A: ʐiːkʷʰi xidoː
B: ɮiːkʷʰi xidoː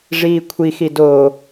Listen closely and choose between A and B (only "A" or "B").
A